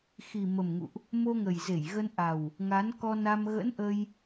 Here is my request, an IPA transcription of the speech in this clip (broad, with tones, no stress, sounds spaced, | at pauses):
x i˨˩ m ə˨˩ m ŋ ṵ˧˨ ʔ | m o˧ ŋ ə˨˩ j z e˧˩ j ɣ ə˧ n ʔ a˨˩ w | ŋ a˨˦ n k ɔ˧ n a˧ m ɣ ə̰˧˥ n ʔ ə˧ j